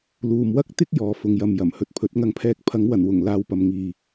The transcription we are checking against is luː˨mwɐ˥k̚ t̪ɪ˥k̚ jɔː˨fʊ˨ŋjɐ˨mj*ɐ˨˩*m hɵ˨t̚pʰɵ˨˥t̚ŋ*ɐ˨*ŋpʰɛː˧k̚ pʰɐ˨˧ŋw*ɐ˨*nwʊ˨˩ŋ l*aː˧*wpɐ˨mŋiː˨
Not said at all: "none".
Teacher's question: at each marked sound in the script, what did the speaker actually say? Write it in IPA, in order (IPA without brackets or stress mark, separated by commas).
ɐ˨˩, ɐ˧, ɐ˨˩, aː˧